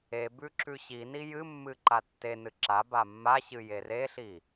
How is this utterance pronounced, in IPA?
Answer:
ebʉ ǁʉɕini jɨmːɨ ǃatːenɨ ǁa bamːaɕɨ jereɬi

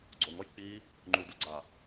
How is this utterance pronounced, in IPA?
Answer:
ɡ͡ǀoŋɔj k͡pi | ŋ͡ǃuduɡ͡ǀa

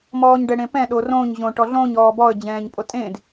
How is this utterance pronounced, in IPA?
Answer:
mɔːɲɖɛɽẽpɛ̃ ɗorõɲ ʑõʈɔɮõɲ ɔːbɔə̯d͡ʑɛ̃ːɲpʼo tʼẽd

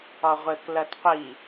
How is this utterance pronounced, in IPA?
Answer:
ɒʁʷɘk lɐtqʷi

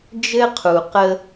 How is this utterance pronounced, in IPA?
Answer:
d͡ʒɘ˦ qʰu˨qə˦

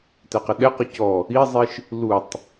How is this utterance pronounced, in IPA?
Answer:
tæqəɗɛqɔ cɔ | izˤiʃ | lutˤ

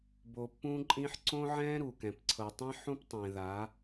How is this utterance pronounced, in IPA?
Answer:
bo˨pːũ˦ǃʼĩ˦ħ ǀõ˦ʕɛ̃˦ ɾu˨kɛ̃˨p ǀʰɤ˨tˤĩ˦ħũ˦p tˤẽ˨ða˨˦

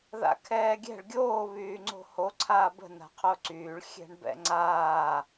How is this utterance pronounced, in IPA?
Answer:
ða̰kʰɛːɡʲɛ̤ɭ ɡʲoː βyːŋ͡ǀo̤ho ǀʰaːbə̤ na̤qʰoǀyːɭ xʲɛ̤ɳbɛ̰ŋ͡ǀaː

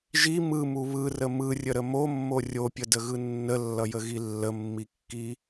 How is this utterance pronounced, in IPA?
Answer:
ʒi mɯmu βɯrə mɯrʲəɾə momːo rʲopʲədəɣɯ nːəlːʌjəɣi lːəmːikːi

